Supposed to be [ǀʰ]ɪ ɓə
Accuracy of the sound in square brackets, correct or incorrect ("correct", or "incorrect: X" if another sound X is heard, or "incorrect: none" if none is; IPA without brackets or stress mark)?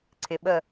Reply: correct